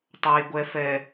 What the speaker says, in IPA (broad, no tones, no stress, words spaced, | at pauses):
tˤaj ɡʷɛ fɛ